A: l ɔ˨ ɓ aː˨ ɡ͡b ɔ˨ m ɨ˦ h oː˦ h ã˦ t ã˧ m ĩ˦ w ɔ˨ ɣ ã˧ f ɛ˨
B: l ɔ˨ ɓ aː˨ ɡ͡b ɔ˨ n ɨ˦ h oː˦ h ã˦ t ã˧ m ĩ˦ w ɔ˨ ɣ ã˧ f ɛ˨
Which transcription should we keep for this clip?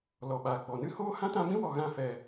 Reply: B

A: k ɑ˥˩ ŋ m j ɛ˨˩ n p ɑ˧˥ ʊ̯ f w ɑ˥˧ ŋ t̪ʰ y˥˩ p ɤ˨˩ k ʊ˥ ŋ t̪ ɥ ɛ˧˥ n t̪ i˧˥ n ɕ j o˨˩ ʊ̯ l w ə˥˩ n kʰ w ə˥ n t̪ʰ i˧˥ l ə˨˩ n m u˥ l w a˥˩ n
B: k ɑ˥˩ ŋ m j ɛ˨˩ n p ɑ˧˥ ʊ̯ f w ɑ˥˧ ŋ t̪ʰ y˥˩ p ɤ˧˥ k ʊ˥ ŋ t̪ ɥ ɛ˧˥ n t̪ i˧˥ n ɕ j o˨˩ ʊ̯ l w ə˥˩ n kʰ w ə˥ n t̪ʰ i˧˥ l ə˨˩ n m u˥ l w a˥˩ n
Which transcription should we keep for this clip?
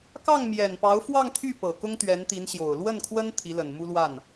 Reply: A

